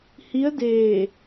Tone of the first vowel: rising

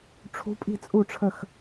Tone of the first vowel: rising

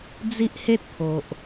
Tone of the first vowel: high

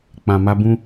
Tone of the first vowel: low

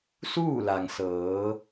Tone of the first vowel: falling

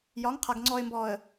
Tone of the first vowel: rising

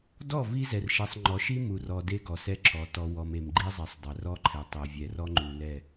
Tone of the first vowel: falling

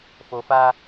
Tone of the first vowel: low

